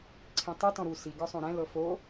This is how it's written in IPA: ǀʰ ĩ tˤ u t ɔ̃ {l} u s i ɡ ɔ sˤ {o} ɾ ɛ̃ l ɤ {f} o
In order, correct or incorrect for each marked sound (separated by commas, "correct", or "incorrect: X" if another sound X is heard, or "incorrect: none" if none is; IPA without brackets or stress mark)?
incorrect: ɾ, incorrect: õ, correct